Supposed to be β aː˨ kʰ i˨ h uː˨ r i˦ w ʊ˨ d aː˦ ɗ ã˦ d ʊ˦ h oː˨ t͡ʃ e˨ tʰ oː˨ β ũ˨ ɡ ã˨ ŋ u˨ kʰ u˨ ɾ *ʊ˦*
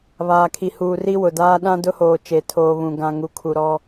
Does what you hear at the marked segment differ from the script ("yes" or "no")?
yes